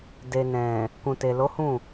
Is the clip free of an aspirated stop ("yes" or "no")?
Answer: yes